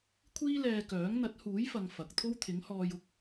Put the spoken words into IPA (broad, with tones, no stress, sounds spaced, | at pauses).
kʷʰ iː˥ l ɛː˧ k œː˨˥ ŋ n̪ ɐ˨˥ t̚ h uː˨˥ j f ɐ˨ ŋ f ɐ˨ k̚ t̪ʰ o˥ w t̪ʰ ɪ˨˥ ŋ h ɔː˧ j ʊ˨˥ k̚